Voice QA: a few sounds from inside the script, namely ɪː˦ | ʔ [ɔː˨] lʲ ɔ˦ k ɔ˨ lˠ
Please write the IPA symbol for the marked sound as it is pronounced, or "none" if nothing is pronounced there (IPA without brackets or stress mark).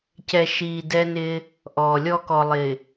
ɔː˨